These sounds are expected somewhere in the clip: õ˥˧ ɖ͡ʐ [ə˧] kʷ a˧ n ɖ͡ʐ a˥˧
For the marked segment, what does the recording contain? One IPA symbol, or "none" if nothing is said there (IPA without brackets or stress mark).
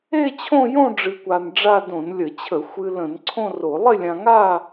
ɨ˧